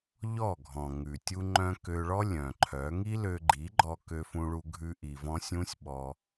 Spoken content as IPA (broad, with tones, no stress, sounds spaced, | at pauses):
ʎ ɔ˦˨ ɡʱ ɔ̃˨ ŋ ʉ˨ tʲ u˧ ŋ͡ǃ œ̃˧ k ø˧ ɭ ɔ˦ lʲ œ̃˨ ǃʰ œ˨˦ ŋ i˦ l ø˧ ɡ͡ǃ i˨˦ ɡ͡ǃ ɔ˧ k ø˧ f ũ˧ ɭ u˧ ɡʱ ʉ˧ ʔ i˨ v ɔ̃˧ sʲ ũ˦ sʲ ɓ ɔ˧